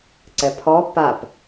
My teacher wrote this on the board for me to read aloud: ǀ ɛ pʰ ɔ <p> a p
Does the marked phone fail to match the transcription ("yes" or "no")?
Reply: no